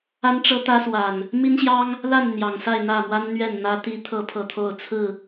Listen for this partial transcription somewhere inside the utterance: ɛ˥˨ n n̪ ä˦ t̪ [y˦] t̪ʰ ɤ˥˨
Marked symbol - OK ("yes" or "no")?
no